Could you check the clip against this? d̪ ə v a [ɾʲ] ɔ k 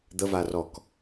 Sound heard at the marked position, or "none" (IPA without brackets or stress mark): r